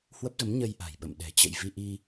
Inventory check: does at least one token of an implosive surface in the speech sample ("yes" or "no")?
yes